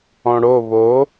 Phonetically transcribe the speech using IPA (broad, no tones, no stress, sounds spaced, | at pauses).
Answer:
ɔ̃ ɽ o β o